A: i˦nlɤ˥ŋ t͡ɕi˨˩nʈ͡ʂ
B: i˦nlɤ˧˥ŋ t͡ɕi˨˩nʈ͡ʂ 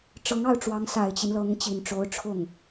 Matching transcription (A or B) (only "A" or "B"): B